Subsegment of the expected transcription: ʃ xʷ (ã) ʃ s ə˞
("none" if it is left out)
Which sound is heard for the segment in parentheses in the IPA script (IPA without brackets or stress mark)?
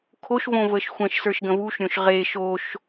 ə̃